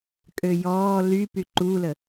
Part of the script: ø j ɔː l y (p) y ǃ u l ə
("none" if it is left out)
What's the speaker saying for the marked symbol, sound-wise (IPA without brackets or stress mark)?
p